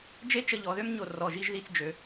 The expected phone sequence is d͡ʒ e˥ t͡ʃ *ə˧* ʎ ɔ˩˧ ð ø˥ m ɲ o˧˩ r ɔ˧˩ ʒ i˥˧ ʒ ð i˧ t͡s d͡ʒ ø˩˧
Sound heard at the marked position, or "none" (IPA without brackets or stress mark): ə˧